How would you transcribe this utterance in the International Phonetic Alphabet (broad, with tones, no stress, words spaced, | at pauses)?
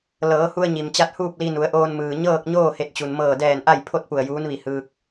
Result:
lɤː˩˧hu˧ə̯ɲi˩mt͡ɕa˧t̚ huː˥˨p̚li˧nu˩˧ə̯ʔoː˧n mɯː˩ɲɤː˥˨k̚ɲoː˥˨ he˧˩t̚t͡ɕu˩nmɤː˧˩ dɛː˧˩n ʔa˥˨jpʰo˥˨t̚ pu˧˩ə̯juː˧˥n ʋi˧˩ hɯː˧k̚